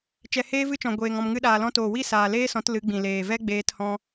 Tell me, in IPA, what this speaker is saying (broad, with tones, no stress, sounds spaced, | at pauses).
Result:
t͡ʃ ɛ˧ h eː˦ v ɨ˦ t͡ʃ ɔ̃˨ ɡʷ eː˨ ŋ ɔ̃˨ m ŋ ɨ˧ ɗ aː˨ l ɔ̃˧ t oː˨ w i˦˨ s aː˨ l eː˦ s ɔ̃˨˦ t l ɨ˨˦ ɡ͡b ĩ˨ l eː˨ v ɛ˦ ɡ͡b eː˧ t h ɔ̃˧